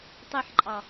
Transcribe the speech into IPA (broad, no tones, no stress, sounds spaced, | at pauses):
tˤ i ħ ǃʼ ɑ